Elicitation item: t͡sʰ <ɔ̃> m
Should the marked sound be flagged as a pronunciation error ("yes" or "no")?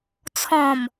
no